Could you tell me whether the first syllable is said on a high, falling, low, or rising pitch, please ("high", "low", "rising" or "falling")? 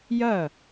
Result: falling